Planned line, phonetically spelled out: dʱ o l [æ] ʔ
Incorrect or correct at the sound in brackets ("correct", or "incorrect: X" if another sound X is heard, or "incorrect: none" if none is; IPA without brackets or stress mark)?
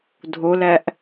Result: correct